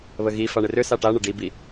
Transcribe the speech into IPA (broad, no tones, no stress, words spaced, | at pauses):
βəɣifa ɳɪrʏsa ʈaɳə ɖibi